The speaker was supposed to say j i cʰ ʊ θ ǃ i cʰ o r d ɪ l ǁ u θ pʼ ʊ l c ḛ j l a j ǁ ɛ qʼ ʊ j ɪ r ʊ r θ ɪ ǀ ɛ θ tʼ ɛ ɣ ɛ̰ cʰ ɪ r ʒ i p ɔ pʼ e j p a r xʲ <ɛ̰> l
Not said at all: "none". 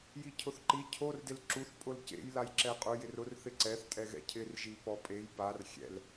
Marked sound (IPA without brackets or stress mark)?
ɛ̰